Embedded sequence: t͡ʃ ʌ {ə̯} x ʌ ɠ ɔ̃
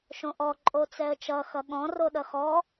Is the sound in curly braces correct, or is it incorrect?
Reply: incorrect